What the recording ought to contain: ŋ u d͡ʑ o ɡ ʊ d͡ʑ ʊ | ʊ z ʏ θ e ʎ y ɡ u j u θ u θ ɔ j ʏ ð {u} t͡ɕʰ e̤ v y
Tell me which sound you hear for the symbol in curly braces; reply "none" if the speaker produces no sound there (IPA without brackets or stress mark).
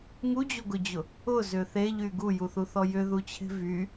u